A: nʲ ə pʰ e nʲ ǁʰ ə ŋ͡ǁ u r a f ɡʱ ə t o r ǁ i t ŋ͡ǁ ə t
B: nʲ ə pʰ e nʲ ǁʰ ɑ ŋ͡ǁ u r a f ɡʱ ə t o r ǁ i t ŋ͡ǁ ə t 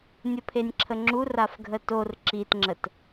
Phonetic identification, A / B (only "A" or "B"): A